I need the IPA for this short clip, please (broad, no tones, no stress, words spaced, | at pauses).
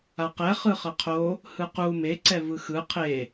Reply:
aqɛ χɯχʌqʰo | hɯqu me ǀɛvɯxɯ qʰe